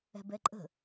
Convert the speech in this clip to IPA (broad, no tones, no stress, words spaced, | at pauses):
ɛ̤bɛǃʼə̤